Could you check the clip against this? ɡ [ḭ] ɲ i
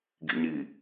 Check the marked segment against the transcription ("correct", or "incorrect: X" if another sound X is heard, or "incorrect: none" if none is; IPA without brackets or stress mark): correct